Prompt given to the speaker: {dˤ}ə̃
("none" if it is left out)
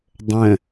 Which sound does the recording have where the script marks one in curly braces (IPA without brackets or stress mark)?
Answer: dˤ